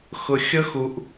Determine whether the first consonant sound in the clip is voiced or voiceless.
voiceless